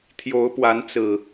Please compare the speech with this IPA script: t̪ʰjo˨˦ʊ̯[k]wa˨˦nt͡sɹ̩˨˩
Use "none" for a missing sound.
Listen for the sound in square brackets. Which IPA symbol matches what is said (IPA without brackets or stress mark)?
p